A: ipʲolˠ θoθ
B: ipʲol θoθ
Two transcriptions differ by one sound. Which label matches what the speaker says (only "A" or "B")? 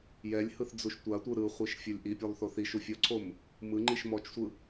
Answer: A